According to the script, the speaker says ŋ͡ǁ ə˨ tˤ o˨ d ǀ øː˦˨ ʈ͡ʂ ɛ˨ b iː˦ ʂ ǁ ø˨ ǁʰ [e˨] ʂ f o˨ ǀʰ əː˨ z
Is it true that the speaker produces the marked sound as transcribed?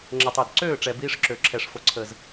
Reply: no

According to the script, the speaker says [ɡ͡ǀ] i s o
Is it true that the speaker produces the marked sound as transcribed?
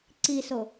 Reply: no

